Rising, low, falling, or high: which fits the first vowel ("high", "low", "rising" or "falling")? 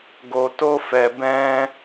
low